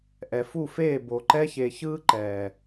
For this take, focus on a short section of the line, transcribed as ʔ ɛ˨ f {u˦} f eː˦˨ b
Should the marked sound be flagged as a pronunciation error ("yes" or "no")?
yes